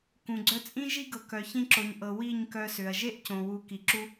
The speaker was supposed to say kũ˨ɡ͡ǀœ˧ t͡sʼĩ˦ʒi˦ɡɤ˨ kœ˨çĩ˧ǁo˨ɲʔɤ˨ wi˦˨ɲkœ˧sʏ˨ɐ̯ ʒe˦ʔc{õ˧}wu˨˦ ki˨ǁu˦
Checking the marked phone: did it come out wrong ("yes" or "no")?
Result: yes